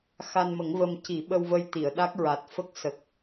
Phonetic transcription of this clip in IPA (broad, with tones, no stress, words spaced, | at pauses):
xa˧nmə˨˩˦ŋvə˧m ci˨˩˦ɓə˧wvə˧jt̪i˨˩˨ə̯ ɗa˦˥k̚ɹa˨˩t̚fə˦˥k̚ sə˨˩k̚